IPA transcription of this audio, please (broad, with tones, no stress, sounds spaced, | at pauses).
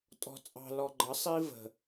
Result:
tʼ ɔ̤˨ t͡sʼ ɑ̤˨ l ɔ˨ ɡ͡ǃ ʌ˨˦ sˤ i˦ v ə̤˨